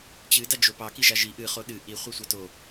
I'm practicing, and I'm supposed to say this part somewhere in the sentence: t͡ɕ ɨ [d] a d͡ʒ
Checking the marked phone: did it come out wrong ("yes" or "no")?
no